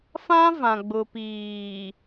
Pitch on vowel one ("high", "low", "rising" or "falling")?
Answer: high